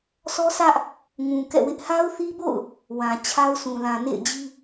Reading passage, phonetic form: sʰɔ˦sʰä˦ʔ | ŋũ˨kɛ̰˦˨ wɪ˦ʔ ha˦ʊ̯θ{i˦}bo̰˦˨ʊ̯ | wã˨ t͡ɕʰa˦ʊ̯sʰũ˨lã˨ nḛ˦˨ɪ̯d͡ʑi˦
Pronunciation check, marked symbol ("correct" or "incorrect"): correct